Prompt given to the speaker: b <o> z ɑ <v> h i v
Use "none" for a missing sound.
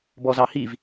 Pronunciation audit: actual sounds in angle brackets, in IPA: ɔ, none

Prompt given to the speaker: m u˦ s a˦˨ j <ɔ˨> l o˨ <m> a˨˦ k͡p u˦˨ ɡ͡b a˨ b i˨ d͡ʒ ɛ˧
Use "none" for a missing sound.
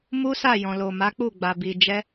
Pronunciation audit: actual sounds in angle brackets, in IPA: ɔ̃˨, m

